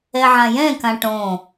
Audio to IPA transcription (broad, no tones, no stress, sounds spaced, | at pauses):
ɛ ʕ ã j ɛ̃ k ã ʈ õ